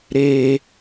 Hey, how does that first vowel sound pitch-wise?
low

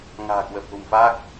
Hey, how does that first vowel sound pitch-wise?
low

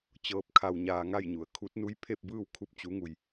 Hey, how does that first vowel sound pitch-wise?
rising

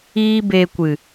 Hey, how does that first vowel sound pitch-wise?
high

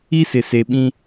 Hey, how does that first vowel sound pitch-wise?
high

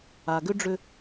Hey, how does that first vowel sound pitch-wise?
low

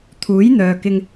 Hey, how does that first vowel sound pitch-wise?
rising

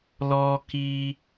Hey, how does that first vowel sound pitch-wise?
high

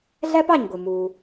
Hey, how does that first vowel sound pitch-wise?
high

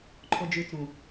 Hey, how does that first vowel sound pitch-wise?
low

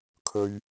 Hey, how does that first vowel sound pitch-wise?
high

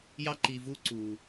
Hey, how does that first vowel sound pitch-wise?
high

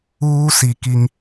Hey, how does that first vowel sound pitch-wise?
high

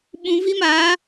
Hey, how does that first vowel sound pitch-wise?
low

